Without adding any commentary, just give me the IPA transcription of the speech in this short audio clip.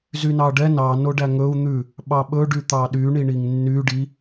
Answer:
zynɑɖɛ nɑ noɖæŋɵu̯ n̪ʉ | ɓɑɓɵ ɖyt̪ɑɗy ɳiɳiŋnːy ɖi

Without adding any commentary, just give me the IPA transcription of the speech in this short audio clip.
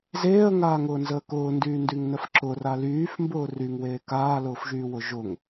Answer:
zeːə̯ŋaːŋʊːnzəː kʊːndyːndyŋ nəfǁʊra lyːfmbʊː ryŋweː kaːlʊːfʒyːwʊ ʒʊŋ

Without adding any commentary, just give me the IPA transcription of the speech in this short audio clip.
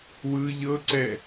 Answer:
wɯ ʎɤǀɛ

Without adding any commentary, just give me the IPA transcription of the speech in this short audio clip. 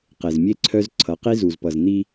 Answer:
qe˨zmʲe˦ǀʰœ˦z ǀʰʌ˨˦qi˦zu˨zpʌ˨z n̪i˦

